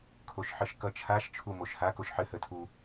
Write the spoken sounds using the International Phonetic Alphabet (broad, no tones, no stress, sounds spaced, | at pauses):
kʰ o ʃ ħ ɘ ʃ k ʌ t͡ʃʰ a ʃ t͡ʃʰ u m o ʃ h a k o ʃ ħ ɘ h ə tʰ u